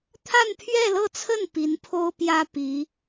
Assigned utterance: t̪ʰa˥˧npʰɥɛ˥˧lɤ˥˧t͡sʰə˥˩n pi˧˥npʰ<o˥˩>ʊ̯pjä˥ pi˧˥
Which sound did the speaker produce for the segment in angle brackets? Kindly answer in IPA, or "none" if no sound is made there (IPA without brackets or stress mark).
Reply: o˥